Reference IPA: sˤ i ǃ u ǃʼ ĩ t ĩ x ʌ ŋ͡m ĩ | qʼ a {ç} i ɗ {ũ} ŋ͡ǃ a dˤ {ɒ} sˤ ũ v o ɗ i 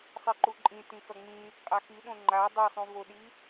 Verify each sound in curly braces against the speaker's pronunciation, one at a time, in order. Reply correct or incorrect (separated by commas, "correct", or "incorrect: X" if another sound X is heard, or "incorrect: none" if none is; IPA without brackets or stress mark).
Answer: incorrect: x, incorrect: õ, incorrect: ʌ